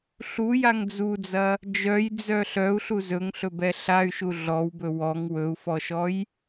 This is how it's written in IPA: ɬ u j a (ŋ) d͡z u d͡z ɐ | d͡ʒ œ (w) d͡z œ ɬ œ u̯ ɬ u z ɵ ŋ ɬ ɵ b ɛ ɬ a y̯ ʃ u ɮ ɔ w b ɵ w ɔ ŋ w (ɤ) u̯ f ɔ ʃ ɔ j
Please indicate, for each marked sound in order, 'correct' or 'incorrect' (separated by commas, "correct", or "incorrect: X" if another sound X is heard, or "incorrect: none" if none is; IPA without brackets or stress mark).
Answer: correct, incorrect: j, incorrect: ɵ